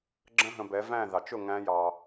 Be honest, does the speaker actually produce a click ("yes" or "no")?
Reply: yes